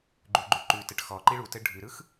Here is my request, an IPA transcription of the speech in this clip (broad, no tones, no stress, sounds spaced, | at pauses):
ɡ͡ǃ ʉ ɡ͡ǃ ʉ ǃ ʉ t ɘ ʈ x ɔ ǃ i ɭ u t ɘ ɖʱ ʉ ɾ ɯ x